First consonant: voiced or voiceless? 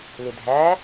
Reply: voiced